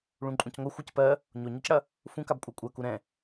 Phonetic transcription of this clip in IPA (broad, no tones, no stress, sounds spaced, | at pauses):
ɭ ũ ǃʼ ũ c ŋʷ ɐ xʷ ɜ c p ɜ | ɲ o ɲ ɑ c ɽ ɐ | f ũ k a b kʷʼ ɑ kʷʼ ɜ k u ɾ ɛ̃